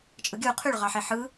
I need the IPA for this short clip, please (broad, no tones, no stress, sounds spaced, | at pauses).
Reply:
t͡ʃʼ ɯ ɡʲ ɯ u̯ qʰ y ɭ ʁ ɑ ħ e ħ ɯ